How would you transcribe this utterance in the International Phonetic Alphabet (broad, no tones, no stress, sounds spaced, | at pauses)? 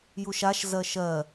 j u ʃ a ʃ z ɜ ʃ ɜ